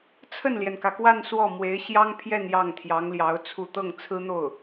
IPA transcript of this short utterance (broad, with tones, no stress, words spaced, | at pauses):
t͡sʰə˥˩nljɛ˩nkä˩kwa˥˧n swɔ˥˩mwe˧˥ɪ̯ ɕjɑ˥ŋpʰjɛ˥˧n jɑ˥˩ŋt̪ʰjɑ˧˥ŋljɑ˧˥ʊ̯t͡sʰu˥˧ t̪ɤ˥˩ŋt͡sʰɹ̩˥n̪o˥˩ʊ̯